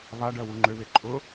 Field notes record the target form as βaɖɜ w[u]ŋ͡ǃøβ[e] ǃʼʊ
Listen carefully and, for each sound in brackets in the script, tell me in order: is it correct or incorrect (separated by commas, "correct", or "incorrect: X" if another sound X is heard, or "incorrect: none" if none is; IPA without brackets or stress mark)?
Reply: correct, correct